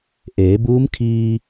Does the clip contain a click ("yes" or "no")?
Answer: no